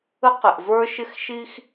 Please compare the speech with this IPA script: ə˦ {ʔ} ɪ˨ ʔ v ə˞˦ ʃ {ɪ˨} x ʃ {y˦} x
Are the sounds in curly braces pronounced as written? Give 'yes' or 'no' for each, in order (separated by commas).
no, no, no